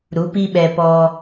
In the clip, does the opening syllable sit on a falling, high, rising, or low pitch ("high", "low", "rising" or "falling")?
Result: rising